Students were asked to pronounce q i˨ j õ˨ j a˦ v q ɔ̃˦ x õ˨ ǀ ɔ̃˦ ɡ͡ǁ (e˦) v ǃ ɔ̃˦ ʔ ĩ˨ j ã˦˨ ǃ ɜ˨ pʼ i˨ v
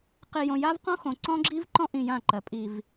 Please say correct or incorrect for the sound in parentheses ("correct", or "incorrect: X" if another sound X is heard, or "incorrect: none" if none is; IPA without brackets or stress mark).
incorrect: i˦